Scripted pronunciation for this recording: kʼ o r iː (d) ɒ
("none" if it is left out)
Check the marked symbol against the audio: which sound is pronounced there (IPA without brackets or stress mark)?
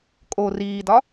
d